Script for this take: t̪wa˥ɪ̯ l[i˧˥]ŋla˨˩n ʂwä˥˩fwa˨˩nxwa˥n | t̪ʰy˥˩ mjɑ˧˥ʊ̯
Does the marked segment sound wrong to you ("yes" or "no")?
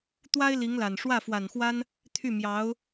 no